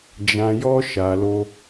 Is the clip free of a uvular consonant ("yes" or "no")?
yes